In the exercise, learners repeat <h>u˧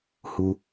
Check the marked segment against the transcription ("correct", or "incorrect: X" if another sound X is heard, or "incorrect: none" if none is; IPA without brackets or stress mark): correct